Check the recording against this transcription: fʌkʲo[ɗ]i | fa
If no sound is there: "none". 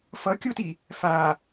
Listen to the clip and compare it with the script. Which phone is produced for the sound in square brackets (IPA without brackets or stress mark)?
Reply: t